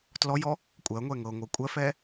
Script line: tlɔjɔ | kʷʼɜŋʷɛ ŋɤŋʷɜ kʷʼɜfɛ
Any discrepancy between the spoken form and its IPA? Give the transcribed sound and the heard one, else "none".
none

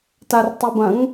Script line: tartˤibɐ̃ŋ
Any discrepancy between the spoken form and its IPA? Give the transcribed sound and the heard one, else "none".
none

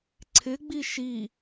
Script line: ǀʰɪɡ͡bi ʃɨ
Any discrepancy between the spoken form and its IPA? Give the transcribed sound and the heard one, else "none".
ɨ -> i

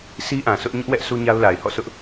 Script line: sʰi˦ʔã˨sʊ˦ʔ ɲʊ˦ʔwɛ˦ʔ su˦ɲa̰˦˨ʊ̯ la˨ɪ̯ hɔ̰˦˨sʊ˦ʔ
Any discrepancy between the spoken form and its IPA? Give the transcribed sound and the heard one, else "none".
a̰˦˨ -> a˦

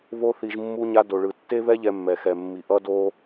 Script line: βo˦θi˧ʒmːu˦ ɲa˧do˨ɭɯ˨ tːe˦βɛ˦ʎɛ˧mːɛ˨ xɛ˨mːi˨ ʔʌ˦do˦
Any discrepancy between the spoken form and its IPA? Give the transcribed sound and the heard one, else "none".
none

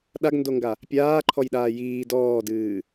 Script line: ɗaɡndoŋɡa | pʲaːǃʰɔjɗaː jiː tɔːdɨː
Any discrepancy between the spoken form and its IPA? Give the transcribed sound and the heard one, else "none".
t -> d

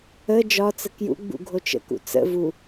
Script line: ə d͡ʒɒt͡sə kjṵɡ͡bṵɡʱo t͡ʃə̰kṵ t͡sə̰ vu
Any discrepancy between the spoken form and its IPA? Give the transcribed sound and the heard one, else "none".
none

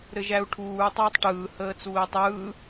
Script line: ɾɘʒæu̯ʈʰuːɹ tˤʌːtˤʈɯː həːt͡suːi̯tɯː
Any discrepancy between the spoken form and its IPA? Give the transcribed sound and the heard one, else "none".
t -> tˤ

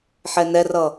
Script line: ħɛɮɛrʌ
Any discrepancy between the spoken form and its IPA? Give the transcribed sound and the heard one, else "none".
ɮ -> n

